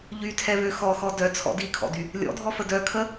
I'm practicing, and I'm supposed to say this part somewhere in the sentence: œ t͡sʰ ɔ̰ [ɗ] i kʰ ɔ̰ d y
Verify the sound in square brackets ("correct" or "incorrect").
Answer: incorrect